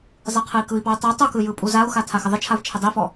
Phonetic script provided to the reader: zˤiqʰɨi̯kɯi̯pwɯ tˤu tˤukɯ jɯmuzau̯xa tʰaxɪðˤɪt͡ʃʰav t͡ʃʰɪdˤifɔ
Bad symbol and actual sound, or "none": m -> pʼ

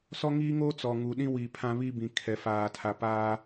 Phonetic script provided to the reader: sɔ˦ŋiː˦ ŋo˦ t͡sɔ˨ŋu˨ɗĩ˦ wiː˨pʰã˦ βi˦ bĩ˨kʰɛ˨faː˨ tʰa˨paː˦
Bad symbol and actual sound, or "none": none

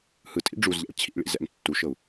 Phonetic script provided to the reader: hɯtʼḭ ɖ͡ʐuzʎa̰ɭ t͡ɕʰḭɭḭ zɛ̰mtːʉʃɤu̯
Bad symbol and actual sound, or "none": ʉ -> u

